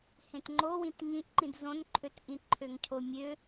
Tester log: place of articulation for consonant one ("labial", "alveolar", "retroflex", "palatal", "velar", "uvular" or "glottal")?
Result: glottal